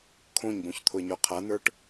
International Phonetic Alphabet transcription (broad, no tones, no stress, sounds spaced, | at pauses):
kʰ õ ɲ b õ ç t̪ʰ ʊ ə̯ ɲ ɔ qʰ a n̪ ə˞ ʈ